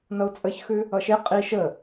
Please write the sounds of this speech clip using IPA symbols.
n ʌ u̯ t͡sʼ ə ç x ʉ | ʌ ʃ e qʼ i ʃ ə

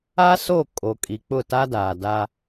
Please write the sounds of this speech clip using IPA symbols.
a˦ s o˦˨ kʼ o˨ kʼ i˨ k͡p ʊ˦˨ t a˦ d a˨ d a˦

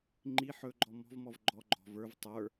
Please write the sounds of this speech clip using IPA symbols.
ŋ͡ǃ i ħ ɵ ɡ͡ǃ ɔ m ɔ̤ v m ɔ v ɡ͡ǃ ɔ ɡ͡ǃ ɔ̤ v ə˞ v tˤ ə˞

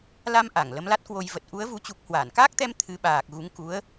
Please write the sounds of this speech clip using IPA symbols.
l a˧ m ʔ a˧˩ ŋ l ə˨˦ m l a˦˥ t̚ k w o˧ j v ə˨˩ t̚ ʔ u˨˦ ə̯ v u˨˦ t͡ɕ u˨˩ k̚ h w aː˧˩ n k aː˦˥ k̚ t̪ ɛ˧ m t̪ʰ ɨ˨˦ ɓ aː˨˩ k̚ ɣ u˨˦ ŋ k u˨˦ ə̯

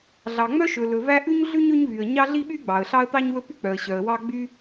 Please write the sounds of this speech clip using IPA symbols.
ɮ ɑ˩ ŋ͡m œ˥ ʃ ɵ˩ l ɵ˩ v æ˥ ʔ ʉ˥ ɲ ɮ ʉ˥ ɲ ɵ˥ ɲ v y˩ ə̯ ɲ ɑ˥ ɮ i˥ ɓ y˥ ɡ͡b ɑ˩ ə̯ ɬ ɑ˥ ə̯ t̪ ɑ˥ ɲ w ɵ˥ p y˥ k͡p œ˩ ə̯ ɕ œ˩ ə̯ w ɑ˥ ɡ͡b y˥

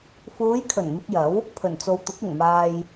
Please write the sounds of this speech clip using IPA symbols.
f uː˨˧ j kʰ ɵ˨˩ n m ɪ˧ k̚ j ɐ˨˥ w | pʰ ɵ˨˩ n t͡s o˨ w t̪ ʊ˨˥ k̚ ɪ˨˩ ŋ m aː˨ j

